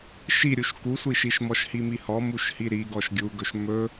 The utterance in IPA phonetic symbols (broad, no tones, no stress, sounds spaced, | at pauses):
ʃ i ɾʲ u ʃ k u sʷ i ʃ i ʃ m ɔ ʃ h i m i h ɔ m u ʃ h i ɾ i ɡ ɔ ʃ ɡʲ u ɡ ɵ ʃ m ɵ